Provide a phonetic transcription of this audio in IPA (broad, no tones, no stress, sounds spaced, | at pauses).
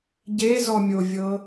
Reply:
ɟ e z ɔ mʲ o vʲ ɤ